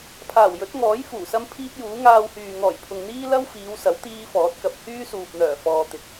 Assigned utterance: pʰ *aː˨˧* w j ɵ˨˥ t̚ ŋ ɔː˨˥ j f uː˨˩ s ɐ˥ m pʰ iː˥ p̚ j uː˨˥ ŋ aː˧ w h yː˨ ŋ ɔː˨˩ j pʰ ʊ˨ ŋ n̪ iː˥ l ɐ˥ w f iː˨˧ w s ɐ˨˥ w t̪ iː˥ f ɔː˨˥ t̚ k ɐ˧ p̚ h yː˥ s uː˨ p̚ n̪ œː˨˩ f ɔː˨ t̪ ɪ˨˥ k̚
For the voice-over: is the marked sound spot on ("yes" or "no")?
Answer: no